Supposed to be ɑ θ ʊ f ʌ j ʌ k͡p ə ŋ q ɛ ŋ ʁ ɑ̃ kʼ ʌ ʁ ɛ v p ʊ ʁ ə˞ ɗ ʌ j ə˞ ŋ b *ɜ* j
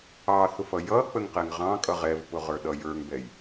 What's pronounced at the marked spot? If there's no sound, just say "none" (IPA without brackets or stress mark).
ɛ